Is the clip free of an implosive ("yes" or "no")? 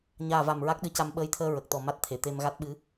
no